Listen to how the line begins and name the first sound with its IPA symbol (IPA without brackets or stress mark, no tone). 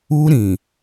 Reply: u